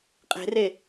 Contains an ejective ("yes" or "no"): yes